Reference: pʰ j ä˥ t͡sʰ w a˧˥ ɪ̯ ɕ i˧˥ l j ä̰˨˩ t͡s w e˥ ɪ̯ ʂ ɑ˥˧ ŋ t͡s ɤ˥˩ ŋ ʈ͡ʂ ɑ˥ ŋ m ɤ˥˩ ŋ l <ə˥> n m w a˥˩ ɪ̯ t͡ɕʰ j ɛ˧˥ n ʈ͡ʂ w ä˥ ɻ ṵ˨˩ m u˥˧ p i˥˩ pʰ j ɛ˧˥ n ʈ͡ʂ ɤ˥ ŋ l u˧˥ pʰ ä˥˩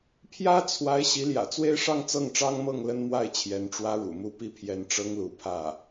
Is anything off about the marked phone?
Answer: no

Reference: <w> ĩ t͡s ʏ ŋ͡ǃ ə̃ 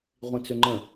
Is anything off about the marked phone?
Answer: yes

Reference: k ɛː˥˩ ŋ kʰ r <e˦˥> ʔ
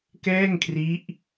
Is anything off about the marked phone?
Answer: yes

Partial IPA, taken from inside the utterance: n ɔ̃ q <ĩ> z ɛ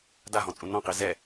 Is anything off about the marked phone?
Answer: yes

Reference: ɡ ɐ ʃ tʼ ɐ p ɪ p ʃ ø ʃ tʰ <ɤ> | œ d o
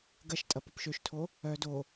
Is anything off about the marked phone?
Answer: yes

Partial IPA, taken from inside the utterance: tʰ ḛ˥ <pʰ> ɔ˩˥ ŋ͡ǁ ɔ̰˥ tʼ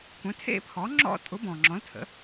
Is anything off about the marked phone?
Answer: no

